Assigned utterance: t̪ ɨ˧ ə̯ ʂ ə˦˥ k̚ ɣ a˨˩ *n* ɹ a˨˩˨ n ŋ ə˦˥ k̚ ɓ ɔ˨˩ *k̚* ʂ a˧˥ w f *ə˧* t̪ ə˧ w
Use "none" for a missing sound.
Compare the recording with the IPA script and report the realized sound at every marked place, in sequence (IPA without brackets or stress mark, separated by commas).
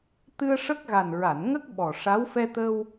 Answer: n, none, ɛ˧